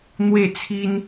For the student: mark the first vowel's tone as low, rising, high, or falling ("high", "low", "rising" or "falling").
falling